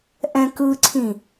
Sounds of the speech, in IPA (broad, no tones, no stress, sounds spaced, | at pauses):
ʔ ɛ̃ k ɯ ǀʰ ĩ